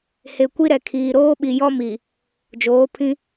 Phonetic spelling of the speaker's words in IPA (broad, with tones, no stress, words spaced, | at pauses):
he˨kʷi˦ɾɛ˨kʰiː˨ ɾoː˦ɓi˨jɔ˦mi˨ | d͡ʒoː˨˦pʰĩ˦